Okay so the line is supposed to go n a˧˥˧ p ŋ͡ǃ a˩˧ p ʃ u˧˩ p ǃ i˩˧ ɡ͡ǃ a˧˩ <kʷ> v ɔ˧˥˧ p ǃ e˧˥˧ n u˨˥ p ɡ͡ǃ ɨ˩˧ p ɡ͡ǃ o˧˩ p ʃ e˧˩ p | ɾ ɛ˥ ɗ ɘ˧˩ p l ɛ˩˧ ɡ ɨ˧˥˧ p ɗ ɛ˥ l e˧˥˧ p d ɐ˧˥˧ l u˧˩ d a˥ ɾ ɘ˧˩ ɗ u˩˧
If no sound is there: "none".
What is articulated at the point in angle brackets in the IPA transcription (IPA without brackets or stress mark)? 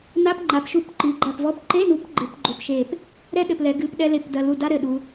p